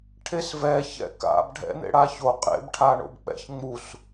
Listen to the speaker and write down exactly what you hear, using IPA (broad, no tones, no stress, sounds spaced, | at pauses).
ʈʰ e s v ɛ ç ɛ̰ k a̰ b ɖʱ ɛ̰ n̪ ḛ ɽ a ç o qʼ ḛ b ʈʰ a ɳ o̰ b k͡p ɛ̰ ç ŋ͡m u s